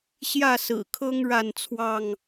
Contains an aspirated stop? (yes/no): yes